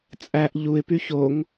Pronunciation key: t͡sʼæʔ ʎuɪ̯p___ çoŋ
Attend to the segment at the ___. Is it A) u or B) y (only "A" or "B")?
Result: B